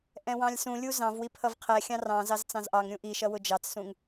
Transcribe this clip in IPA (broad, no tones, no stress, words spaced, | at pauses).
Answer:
ʔɛ̃wɑ̃lʲsũlʲu zɑ̃vwi pʰʌvqʰɛxʲɑ̃ rɑ̃ zɑzt͡sɑ̃zʔɑŋɾʲũ ʔiʃʌ wʊd͡ʒɑt͡ssũŋ